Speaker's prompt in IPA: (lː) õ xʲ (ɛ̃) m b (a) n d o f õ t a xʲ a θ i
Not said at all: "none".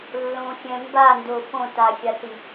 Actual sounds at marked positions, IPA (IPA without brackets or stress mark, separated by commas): lː, ɛ̃, a